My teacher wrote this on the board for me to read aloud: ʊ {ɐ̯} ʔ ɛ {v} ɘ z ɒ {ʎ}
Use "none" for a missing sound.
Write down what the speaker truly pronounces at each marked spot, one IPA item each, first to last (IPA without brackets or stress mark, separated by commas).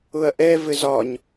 ɐ̯, v, ɲ